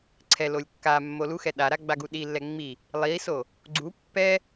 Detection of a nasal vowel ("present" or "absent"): absent